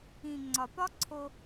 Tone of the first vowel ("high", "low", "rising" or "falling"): low